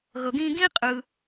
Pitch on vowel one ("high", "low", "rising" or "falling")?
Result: low